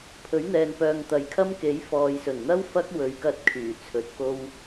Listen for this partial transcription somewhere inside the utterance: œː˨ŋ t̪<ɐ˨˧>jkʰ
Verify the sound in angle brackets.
incorrect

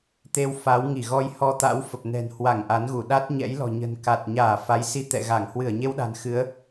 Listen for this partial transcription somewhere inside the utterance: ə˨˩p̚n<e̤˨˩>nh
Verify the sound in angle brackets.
incorrect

